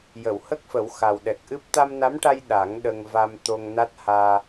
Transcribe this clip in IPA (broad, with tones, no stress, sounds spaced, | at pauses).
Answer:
j ə˨˩˨ w h ə˦˥ k̚ f ə˨˩˦ w x a˨˩ w ɗ ɛ˨˩ k̚ ʔ ɨ˦˥ p̚ t̪ a˧ m n a˧˥ m ʈ a˧ j ɗ a˨˩˦ ŋ ɗ ə˧ ŋ v a˧ m t̪ o˧ ŋ n a˦˥ t̚ h aː˧